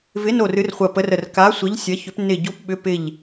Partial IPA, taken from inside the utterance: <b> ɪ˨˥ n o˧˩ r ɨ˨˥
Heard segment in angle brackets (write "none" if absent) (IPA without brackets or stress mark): v